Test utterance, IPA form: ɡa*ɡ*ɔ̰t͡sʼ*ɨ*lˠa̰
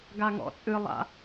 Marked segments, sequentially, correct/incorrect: incorrect, correct

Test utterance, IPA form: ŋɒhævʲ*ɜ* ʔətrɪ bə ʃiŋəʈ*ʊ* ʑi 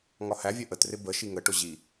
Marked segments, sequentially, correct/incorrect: correct, correct

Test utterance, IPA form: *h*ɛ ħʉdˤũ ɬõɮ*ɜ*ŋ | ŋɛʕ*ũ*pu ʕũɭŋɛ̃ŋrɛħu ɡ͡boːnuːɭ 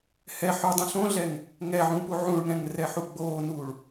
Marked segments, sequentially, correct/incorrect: correct, incorrect, correct

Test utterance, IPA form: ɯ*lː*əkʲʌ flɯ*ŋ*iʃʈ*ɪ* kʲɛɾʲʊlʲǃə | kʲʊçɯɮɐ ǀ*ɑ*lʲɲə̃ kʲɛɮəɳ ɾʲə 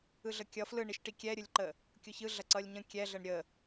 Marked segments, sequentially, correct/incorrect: incorrect, incorrect, incorrect, incorrect

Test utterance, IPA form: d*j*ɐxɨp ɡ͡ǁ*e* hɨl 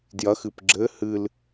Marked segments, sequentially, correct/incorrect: correct, incorrect

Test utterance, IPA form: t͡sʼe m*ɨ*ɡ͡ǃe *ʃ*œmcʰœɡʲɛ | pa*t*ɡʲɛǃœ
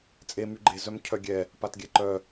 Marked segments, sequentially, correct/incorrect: incorrect, incorrect, correct

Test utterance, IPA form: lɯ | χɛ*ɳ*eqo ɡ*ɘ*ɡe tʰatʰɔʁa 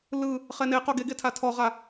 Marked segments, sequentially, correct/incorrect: incorrect, incorrect

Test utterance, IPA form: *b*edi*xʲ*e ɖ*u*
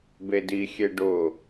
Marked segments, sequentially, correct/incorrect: correct, correct, incorrect

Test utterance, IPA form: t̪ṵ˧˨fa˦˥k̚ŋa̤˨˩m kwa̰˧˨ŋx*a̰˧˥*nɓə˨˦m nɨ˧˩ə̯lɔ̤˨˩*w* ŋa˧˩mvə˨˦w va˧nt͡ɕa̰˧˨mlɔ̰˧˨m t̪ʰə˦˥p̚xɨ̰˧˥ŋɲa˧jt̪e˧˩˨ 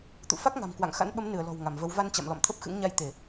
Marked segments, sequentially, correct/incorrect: correct, correct

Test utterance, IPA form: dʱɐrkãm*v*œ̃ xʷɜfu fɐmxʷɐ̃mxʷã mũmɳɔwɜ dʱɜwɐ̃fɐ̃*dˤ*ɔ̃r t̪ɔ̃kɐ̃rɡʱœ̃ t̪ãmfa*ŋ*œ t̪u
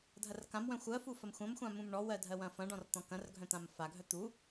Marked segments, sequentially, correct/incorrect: incorrect, incorrect, incorrect

